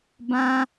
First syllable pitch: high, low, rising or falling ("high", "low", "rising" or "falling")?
high